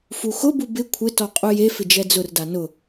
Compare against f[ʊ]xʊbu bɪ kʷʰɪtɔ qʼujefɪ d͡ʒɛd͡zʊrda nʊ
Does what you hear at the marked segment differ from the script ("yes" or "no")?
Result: yes